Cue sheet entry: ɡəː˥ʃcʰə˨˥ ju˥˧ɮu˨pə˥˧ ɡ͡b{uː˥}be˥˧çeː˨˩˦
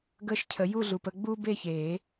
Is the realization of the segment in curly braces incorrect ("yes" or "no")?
no